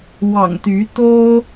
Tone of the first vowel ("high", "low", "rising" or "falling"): low